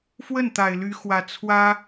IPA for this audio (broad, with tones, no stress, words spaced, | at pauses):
fwə˥˩n t̪a˨˩ɪ̯ly˧˥xwä˨˩ t͡sʰwä˥